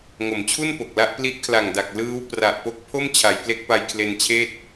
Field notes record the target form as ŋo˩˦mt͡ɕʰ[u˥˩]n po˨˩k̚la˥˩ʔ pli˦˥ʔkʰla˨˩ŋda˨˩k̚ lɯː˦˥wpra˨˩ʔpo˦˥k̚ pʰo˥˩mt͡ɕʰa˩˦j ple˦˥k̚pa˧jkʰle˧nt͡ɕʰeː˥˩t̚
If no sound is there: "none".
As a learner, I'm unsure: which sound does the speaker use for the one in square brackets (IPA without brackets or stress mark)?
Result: u˥˩